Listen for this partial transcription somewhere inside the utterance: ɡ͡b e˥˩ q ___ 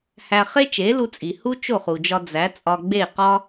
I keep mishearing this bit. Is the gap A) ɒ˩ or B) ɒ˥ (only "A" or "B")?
B